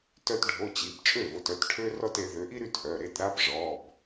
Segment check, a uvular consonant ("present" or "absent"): absent